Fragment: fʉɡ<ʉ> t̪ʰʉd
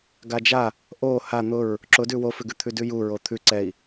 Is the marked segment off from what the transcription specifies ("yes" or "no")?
no